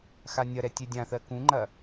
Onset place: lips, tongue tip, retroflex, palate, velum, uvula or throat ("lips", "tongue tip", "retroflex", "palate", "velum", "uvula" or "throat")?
velum